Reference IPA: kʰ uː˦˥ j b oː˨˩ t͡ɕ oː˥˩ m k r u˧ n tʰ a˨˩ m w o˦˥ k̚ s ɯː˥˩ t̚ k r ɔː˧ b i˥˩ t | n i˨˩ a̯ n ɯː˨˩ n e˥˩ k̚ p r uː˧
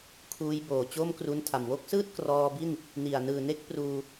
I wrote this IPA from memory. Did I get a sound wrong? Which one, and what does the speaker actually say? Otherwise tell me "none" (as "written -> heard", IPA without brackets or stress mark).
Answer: t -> n